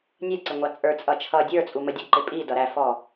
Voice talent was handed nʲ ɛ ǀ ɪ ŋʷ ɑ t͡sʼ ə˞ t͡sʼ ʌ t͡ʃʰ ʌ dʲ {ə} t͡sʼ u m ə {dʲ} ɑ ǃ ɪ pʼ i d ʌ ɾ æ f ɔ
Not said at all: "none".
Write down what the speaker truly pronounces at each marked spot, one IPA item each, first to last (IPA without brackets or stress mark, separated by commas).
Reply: ə˞, dʲ